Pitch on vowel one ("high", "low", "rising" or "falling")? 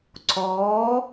rising